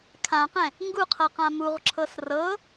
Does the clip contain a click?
yes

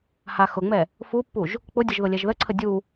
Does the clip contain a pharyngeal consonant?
no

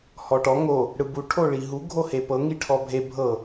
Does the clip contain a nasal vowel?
no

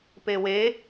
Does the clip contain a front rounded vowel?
no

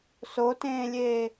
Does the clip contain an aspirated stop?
no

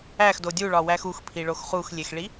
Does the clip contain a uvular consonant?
yes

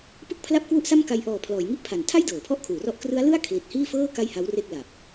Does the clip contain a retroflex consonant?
no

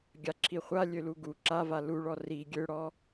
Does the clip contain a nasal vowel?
no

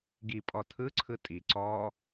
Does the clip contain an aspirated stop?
yes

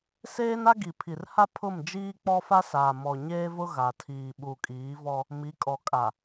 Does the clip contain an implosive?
yes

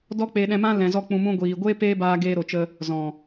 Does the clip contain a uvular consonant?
no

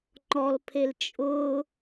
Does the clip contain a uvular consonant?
no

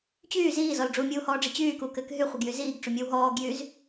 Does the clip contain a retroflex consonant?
yes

